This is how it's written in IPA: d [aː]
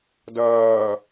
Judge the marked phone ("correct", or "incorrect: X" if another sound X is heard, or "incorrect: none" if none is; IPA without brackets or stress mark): incorrect: ɐː